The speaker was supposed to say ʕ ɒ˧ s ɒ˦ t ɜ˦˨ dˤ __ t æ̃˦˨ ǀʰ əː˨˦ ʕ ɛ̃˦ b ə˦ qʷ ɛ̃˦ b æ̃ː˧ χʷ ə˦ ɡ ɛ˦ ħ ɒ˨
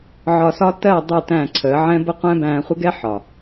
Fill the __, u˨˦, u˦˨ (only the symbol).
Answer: u˦˨